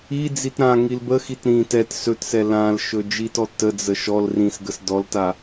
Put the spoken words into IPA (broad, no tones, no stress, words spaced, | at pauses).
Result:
id͡zit ɾã ŋilbəxit ɾĩ tɛt sɵtsɛ lãl ʃɵd͡ʒitɔ təd͡zə ʃɔl rĩsɡəs dɔlta